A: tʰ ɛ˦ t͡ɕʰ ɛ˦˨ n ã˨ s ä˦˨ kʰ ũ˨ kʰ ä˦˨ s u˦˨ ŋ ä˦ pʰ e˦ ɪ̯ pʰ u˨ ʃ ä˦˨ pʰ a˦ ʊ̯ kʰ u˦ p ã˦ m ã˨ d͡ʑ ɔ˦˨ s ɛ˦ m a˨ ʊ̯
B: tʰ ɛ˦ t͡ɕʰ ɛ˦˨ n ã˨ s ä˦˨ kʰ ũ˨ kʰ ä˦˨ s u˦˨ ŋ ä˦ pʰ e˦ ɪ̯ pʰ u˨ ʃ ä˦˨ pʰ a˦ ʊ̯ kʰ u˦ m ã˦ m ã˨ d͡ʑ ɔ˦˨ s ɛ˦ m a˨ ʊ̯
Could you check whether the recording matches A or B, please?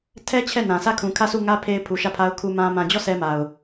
B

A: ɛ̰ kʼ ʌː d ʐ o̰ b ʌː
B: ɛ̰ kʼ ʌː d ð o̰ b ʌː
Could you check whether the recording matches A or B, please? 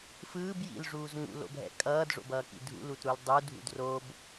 A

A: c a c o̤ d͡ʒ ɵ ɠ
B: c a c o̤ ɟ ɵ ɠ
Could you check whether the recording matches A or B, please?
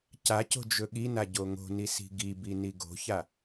A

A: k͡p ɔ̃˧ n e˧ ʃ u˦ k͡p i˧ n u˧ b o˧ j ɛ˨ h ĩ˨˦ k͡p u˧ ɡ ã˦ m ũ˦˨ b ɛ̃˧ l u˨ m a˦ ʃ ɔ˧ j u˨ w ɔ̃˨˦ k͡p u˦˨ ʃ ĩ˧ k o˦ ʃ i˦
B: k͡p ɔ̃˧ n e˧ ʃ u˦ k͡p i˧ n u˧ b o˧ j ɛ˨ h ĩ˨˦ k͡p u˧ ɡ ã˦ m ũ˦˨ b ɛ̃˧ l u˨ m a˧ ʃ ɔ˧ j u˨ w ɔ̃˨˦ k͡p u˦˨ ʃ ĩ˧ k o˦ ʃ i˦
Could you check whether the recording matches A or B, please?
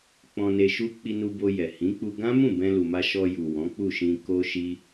B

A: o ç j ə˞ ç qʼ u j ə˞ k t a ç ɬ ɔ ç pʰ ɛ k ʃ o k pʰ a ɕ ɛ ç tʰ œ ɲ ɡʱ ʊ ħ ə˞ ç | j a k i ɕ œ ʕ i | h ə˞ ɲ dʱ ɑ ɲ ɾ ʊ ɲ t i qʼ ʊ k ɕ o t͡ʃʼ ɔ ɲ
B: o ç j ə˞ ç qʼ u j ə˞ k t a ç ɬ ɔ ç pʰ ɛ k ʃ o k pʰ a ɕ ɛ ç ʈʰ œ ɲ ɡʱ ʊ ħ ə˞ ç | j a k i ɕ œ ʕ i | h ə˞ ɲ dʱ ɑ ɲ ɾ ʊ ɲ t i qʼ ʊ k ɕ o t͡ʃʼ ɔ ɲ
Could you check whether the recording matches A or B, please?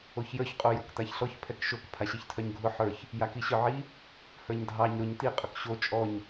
A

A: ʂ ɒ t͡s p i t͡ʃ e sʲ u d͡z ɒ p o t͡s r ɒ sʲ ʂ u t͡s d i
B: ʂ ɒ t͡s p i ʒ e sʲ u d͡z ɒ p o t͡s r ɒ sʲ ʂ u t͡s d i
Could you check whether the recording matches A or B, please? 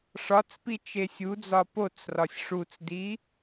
A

